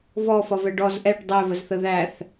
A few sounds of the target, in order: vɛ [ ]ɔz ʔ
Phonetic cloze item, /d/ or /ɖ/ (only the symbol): ɖ